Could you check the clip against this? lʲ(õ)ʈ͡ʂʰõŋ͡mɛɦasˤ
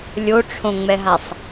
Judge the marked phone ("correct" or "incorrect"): incorrect